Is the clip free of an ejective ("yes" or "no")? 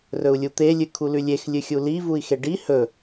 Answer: yes